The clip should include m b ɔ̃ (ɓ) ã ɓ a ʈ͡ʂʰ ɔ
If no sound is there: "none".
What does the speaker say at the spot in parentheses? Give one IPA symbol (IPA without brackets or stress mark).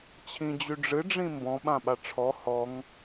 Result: ɓ